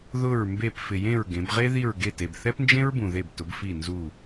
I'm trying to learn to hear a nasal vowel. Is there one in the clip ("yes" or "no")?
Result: yes